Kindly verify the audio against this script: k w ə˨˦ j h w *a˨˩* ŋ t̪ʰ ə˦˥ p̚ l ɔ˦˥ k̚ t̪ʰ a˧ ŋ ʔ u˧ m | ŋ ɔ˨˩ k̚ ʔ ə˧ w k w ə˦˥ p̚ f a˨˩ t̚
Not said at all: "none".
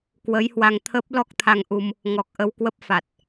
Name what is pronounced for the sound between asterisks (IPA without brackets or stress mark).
a˧